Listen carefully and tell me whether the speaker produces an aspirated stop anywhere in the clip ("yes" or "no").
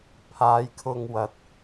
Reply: yes